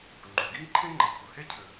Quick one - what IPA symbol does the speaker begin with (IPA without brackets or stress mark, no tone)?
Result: ŋ͡ǃ